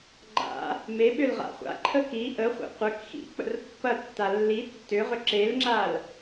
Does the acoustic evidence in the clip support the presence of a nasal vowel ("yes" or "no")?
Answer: no